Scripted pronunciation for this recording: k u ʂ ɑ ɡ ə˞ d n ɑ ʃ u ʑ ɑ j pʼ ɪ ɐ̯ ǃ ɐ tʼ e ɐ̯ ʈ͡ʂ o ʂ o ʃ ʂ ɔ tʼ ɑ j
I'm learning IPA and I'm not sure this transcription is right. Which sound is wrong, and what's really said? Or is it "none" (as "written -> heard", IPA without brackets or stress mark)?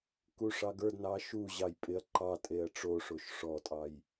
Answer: ɐ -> ɑ